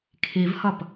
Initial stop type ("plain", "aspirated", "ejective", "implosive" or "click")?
aspirated